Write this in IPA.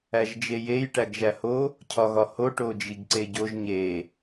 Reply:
æʒd͡ʒejej ʈæɡʒæho | cʰɒɣɒho ʈod͡ʒiɡǀeɟoʒ ɲe

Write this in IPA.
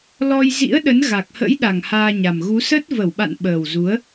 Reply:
lɔ˧j zḭ˧˥ə̯ɗə˨˦n ɣa˨˩k̚hə̰˧˥jɗa˨˩ŋ haː˧ɲa˨˩mɣu˨˦ sə˦˥t̚ və˧˩wɓa̰˧˨n ɓəː˨˩wzu˨˦ə̯

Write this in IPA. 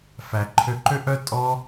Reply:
fæ˧ǃʰø˦ ǃø˦ʔœ˦ tʼɔ˦

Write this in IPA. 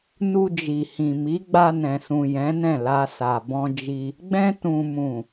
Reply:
nu˧d͡ʒi˨hĩ˨ mi˨˦ɡ͡ba˧nɛ̃˨sũ˨ jɛ̃˨˦nɛ̃˦˨la˧ sa˨bɔ̃˧d͡ʒi˧ | ɡ͡bɛ̃˧tũ˨mũ˨

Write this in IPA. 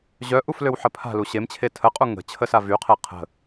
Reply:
ʑœʔuf løwħəpʰa̤lu ɕemt͡ɕʰe tʰəqʼu ŋə̤ t͡ɕʰəsavyqʰe qʰə̤

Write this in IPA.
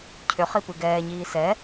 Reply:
cʰʏχipɯ ɡɛːɲiː sɛ

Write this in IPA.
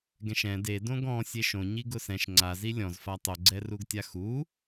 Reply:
ɡɛ̃ʃɛ̃ de dõɡɔ̃ sʲeʃõ ɲiɡʊsɛ̃ʃ ŋ͡ǀazi lʲɔ̃zfa tˤoɡ͡ǀɛruɡtʲa xu

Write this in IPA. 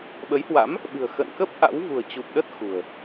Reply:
ɓə˨˦jhwa̰˧˥m | ɓɨ̤˨˩ə̯xə̰˧˨nkə˦˥p̚ ʔa̰˧˥w vṳ˨˩ə̯t͡ɕu˨˩p̚ɗə˦˥t̚ xṳ˨˩ə̯

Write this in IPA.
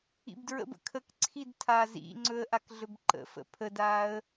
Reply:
ḭbdɹə̰bə̰ kʰəkǀʰid tʰazḭŋ͡ǀɵə̯ ʔakɮɵbǃə̰fə̰ pʰədaːə̯

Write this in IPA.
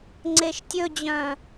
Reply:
ŋ͡ǀeʃtʲɵd͡ʑœ̃

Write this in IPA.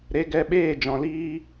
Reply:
ɾe˧ ɡɛ˧ɓeː˦˨ d͡ʒɔ̃˧liː˦

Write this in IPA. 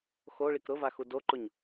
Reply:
xoɭik ɾʊvaxu doǃʊɲ

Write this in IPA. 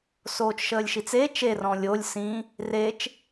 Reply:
soːt͡ʃʃəːlʲʃit͡se t͡ʃerɔ̃ lʲolʲ sĩ | ret͡ʃ

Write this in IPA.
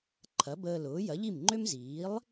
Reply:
ǃʰɐ˩˥bəː˧lʊː˩˥ jɐ˩˥ʎi˥˩mŋ͡ǃø˥m ziː˩˥lˠ

